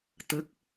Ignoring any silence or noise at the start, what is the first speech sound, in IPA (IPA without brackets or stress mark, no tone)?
t̪